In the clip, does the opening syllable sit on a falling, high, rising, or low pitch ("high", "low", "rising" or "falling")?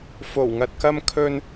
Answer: low